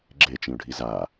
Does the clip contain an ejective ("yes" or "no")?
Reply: no